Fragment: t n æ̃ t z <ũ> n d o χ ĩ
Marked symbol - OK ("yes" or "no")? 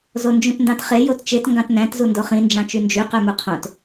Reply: no